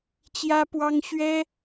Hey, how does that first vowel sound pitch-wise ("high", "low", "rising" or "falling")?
high